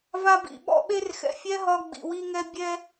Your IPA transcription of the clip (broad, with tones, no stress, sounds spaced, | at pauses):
v a˧ b ḭ˩ ɓ ɔ̰˧ ɓ e˧ r x ɛ̰˩ fʲ ɛ˧ ɦ ɒ˧ ɡ͡b ḭ˩ w i˧ ŋ ɛ˧ bʲ ɛ˧